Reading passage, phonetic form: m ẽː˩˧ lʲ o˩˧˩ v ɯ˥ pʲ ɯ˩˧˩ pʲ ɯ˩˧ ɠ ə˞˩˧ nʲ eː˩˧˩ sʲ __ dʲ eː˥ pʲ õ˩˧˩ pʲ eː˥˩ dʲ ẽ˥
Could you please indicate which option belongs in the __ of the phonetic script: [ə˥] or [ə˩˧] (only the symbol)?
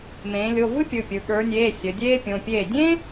ə˩˧